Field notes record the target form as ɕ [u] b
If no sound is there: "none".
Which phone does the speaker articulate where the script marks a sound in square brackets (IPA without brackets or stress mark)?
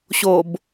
o